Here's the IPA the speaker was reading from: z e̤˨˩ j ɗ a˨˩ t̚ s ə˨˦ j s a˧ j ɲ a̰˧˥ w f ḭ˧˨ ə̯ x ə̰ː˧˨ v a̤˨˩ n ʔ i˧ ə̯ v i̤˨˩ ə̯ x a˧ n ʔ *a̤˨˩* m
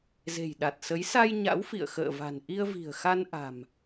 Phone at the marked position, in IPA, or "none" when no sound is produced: a̤˨˩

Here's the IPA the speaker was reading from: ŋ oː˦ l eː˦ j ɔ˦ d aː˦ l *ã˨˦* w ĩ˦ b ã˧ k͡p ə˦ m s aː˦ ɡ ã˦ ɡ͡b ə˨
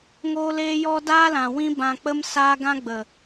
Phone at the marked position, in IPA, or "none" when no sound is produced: ã˨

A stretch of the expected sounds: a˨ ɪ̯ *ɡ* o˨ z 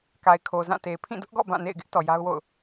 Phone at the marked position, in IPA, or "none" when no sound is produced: kʰ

